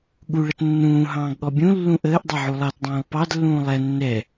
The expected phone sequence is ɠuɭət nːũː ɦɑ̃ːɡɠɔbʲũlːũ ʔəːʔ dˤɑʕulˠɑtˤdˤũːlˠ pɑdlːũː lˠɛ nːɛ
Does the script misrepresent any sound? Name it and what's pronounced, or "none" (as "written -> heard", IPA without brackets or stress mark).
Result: tˤ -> t